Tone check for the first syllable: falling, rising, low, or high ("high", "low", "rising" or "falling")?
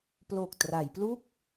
low